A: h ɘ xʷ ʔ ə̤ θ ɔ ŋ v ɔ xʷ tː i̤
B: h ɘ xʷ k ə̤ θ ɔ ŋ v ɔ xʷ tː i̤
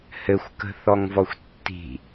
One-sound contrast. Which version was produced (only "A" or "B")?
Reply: B